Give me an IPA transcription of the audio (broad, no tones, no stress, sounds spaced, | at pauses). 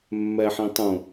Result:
mː ɛ ħ ĩ tˤ ũ